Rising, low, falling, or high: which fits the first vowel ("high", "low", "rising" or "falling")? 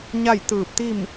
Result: falling